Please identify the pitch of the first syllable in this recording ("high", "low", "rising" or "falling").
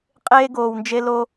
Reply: high